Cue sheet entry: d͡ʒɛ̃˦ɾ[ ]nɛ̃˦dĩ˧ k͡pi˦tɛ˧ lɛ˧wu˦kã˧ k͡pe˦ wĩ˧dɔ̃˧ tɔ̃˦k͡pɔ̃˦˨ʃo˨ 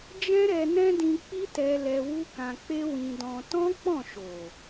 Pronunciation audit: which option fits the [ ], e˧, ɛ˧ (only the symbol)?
ɛ˧